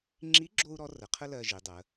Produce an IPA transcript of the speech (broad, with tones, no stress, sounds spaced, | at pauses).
ŋ͡ǁ i˧˥ ɡ͡ǁ o˧ u̯ ɾ ɔ˧˥ r ə˩˧ qʰ ə˥ l ɜ˧ ʒ i˩˧ dˤ ə˩˧